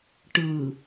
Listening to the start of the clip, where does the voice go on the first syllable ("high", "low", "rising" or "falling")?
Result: low